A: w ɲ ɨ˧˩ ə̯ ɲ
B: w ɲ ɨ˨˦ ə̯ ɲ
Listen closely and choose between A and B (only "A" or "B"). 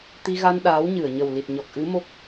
A